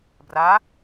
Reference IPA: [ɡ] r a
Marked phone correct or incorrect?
incorrect